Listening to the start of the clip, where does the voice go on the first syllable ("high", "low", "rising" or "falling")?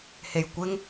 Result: low